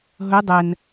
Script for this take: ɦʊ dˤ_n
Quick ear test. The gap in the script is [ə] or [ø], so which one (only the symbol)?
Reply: ə